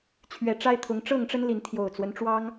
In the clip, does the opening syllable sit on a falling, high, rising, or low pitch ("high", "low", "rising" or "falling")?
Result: rising